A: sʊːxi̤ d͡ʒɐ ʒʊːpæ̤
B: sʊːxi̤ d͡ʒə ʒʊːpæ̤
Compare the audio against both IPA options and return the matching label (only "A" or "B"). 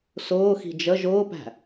B